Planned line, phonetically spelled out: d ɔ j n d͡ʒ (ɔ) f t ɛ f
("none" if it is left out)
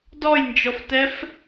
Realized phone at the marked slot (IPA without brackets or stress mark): ɔ